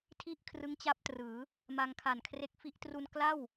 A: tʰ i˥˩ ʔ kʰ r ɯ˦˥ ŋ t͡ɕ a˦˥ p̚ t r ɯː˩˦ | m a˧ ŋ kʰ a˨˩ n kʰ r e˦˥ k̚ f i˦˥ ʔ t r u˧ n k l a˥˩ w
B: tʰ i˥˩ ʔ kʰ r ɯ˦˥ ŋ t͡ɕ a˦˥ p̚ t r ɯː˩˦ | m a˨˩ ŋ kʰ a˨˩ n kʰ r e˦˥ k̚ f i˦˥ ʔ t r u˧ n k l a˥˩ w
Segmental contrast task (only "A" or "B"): A